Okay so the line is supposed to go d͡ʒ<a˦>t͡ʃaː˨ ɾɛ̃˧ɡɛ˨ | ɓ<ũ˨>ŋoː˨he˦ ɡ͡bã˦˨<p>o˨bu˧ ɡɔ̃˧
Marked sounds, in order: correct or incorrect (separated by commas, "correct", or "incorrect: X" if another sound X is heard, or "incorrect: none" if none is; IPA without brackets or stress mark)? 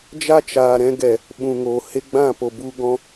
correct, correct, correct